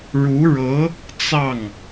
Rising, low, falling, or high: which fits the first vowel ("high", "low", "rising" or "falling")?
rising